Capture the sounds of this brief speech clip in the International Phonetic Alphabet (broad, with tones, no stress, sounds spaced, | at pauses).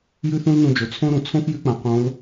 j ʉ˥ θ ũ˥ l n ũ˧ d͡ʒ o˩ t͡sʰ õ˥ ɾ ũ˩ t͡sʰ õ˥ f j ʉ˧˥ k͡p ã˩ q õ˧˥ l